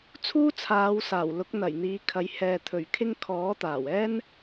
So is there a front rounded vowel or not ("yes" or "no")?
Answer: no